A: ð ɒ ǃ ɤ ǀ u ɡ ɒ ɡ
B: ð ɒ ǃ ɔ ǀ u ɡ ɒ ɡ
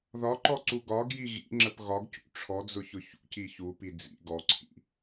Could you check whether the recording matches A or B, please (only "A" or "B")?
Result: B